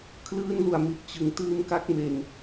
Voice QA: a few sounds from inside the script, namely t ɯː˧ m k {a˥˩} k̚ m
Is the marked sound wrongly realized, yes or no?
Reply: yes